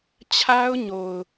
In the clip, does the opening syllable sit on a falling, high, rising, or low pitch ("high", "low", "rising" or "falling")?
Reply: high